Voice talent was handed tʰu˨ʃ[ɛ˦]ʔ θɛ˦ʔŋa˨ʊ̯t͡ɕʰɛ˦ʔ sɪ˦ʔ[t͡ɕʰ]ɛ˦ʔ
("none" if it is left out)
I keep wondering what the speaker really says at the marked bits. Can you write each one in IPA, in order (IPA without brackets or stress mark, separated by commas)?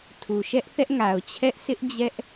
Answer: ɛ˦, d͡ʑ